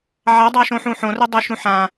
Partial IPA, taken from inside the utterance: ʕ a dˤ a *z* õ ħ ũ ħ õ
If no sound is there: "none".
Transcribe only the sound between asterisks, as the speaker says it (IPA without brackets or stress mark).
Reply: ʃ